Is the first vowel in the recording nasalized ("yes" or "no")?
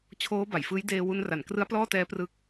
no